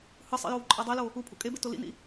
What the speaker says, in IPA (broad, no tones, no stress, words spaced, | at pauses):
hɯsˤḭ jowǃʼadˤɛlo | upʰṵ kʼebe tolḭnḭ